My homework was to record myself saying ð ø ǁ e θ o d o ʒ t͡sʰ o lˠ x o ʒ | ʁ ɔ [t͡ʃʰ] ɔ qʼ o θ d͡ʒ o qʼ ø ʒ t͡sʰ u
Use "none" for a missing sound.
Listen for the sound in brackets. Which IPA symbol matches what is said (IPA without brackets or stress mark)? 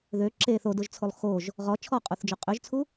t͡ʃʰ